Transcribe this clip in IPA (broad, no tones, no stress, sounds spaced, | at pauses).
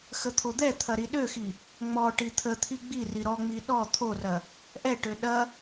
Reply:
x ə t̪ʰ o d̪ ɛ t̪ʰ ɐ ɾ i ɗ ø x i | ŋ͡m ɔ ʈ i t̪ʰ ə t̪ʰ i ɡ͡b i r i ɾ ɔ ŋ͡m i ɗ ɔ t̪ʰ o r ɐ | ʔ ɛ ʈ ø ɗ ɐ